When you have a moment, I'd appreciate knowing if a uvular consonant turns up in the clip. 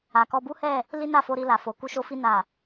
no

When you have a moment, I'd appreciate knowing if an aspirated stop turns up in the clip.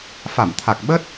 yes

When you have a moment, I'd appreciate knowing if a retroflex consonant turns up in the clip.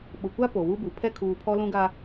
no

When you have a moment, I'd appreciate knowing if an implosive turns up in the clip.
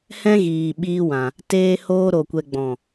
yes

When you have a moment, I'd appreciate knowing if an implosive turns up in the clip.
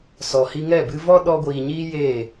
yes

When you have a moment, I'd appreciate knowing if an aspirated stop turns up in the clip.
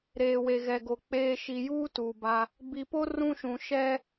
no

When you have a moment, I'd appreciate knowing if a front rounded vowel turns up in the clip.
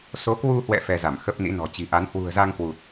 no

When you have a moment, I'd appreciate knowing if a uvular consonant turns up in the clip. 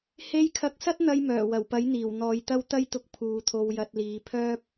no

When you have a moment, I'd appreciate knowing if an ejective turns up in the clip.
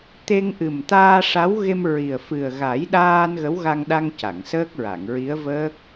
no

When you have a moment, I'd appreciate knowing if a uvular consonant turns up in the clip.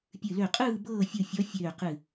yes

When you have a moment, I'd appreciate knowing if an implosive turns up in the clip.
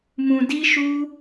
no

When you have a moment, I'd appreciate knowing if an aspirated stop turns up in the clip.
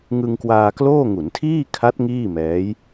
yes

